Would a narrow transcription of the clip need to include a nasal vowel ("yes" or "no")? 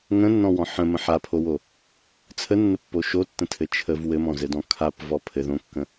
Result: yes